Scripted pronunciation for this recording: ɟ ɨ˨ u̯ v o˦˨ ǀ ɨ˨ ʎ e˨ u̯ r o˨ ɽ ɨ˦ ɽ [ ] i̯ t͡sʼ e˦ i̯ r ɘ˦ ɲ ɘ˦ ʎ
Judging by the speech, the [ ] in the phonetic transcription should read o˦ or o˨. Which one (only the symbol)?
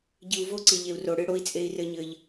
o˦